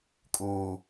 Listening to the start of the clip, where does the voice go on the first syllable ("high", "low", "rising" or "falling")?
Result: low